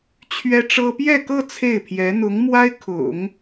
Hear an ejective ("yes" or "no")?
no